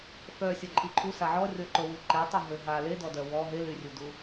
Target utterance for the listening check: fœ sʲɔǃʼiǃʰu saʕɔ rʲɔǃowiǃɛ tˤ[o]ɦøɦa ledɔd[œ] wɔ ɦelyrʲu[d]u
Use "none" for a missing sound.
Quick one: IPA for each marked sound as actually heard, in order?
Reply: o, œ, d

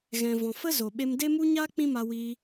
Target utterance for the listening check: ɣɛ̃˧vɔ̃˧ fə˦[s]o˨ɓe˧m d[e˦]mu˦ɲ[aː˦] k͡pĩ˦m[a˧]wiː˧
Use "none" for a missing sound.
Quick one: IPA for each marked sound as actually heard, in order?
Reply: z, e˦, aː˦, a˧

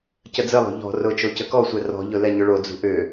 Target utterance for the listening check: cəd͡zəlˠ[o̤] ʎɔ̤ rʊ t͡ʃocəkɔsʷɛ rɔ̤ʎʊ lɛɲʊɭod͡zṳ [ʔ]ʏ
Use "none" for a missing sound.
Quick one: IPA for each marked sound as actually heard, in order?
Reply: o̤, ʔ

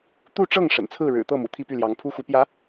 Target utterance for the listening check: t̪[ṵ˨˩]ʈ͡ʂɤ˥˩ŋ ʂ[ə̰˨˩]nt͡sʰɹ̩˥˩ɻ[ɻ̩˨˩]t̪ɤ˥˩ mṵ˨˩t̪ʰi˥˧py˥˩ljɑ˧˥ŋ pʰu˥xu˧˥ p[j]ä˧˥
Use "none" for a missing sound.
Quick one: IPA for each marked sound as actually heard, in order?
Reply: u˥˧, ə̰˨˩, ɻ̩˨˩, j

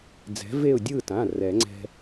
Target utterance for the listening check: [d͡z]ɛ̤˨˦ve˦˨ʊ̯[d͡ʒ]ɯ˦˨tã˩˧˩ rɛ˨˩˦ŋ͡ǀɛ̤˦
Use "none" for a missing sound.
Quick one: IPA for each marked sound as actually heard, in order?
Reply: d͡z, dʲ

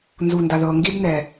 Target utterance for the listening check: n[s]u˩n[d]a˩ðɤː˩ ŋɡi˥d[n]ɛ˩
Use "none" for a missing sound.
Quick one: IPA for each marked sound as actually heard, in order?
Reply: z, d, n

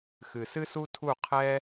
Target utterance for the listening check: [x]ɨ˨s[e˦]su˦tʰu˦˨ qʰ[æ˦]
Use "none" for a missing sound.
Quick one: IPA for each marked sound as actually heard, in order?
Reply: x, ɨ˦, ɛ˦

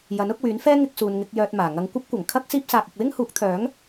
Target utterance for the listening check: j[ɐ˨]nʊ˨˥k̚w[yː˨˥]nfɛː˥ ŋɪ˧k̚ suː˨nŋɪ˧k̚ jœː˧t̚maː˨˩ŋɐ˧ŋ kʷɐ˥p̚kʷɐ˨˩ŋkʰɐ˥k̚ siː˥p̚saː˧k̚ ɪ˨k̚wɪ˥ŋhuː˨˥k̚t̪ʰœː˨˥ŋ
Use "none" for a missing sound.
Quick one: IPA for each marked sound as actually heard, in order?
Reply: ɐ˨˥, yː˨˥

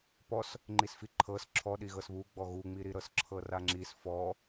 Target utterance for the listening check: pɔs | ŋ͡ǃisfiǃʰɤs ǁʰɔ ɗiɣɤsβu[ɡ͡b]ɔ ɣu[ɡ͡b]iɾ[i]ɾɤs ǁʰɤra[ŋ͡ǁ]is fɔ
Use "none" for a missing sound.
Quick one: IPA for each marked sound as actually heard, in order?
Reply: ɡ͡b, ŋ͡m, i, ŋ͡ǁ

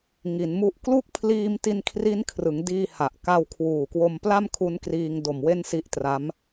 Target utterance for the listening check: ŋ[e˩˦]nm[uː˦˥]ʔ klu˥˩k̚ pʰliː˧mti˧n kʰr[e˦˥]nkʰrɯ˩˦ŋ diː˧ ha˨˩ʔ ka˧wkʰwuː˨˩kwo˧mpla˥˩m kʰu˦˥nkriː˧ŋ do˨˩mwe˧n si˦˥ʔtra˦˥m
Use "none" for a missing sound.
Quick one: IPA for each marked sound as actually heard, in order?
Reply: i˩˦, u˦˥, i˦˥

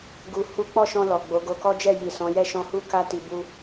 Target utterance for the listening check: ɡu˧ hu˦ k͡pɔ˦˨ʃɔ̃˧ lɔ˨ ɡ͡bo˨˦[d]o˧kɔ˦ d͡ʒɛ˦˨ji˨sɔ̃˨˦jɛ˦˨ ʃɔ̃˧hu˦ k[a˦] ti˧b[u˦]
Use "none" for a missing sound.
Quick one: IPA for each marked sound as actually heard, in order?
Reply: ɡ, a˦, u˦

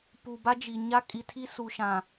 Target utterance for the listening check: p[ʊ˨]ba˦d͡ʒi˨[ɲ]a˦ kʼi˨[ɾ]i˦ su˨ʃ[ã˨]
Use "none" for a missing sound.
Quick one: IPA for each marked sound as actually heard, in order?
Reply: u˨, ɲ, tʰ, ã˨

